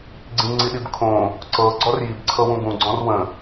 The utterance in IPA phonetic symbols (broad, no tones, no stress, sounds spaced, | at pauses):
ɡ͡ǀ ĩ ŋ͡ǀ i ɗ i b kʰ õ | ǀ ɤ ɡ͡ǀ ɔ r j i b ǀʰ ɤ w ũ ɡ ũ ɡ͡ǀ ɔ̃ r w ə̃